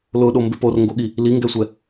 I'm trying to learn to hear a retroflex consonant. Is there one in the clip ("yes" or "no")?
no